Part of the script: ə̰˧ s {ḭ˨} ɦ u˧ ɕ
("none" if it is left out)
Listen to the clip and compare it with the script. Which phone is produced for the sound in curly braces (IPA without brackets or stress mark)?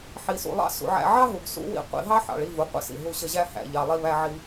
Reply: ḭ˨